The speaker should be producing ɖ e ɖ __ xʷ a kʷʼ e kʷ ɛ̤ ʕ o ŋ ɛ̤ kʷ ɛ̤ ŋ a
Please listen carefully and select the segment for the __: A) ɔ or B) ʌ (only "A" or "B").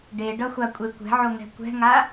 B